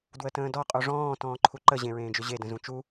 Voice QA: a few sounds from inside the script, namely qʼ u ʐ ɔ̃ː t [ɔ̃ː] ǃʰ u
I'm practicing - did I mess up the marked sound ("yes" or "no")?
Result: no